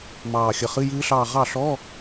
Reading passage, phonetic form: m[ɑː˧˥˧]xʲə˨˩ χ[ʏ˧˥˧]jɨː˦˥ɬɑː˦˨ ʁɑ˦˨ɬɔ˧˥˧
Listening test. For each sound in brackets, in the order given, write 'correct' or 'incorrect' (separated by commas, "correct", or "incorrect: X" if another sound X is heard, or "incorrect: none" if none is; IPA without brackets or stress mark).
incorrect: ɑː˨˩, incorrect: ɨ˧˥˧